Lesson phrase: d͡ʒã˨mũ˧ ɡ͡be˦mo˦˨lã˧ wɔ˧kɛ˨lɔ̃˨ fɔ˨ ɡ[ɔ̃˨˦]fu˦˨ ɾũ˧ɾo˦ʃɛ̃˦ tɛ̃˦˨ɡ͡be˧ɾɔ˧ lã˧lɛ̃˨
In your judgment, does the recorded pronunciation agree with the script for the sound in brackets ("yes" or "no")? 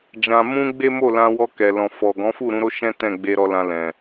yes